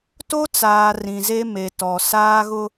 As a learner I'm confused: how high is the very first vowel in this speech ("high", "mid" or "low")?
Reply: mid